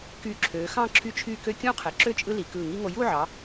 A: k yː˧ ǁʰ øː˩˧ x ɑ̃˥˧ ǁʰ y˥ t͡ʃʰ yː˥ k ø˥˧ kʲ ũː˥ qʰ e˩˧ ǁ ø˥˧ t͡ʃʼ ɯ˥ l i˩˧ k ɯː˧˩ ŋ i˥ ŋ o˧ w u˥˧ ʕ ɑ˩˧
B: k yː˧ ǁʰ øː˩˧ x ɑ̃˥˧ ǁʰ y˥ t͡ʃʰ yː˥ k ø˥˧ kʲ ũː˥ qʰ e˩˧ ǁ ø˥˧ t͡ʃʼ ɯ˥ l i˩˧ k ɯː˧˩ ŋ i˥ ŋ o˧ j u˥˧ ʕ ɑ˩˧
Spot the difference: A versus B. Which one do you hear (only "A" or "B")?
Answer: B